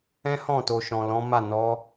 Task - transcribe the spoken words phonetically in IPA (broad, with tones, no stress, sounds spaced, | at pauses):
ɛ̃˦ h ɔ̃˦˨ t o˨ ʃ ɔ̃˨ l ɔ̃˨˦ m a˦˨ n ɔ˨˦